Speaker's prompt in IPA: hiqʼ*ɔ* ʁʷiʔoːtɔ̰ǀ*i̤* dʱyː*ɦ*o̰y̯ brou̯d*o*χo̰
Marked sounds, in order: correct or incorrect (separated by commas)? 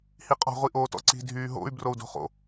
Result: incorrect, correct, correct, incorrect